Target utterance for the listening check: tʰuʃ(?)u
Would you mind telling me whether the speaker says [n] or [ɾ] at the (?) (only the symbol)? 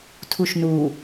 n